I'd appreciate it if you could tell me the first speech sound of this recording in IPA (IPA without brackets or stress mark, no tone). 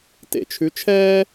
t